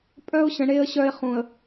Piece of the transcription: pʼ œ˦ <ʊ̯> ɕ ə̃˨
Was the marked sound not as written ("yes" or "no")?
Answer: no